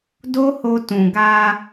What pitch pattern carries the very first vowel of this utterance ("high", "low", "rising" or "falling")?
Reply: high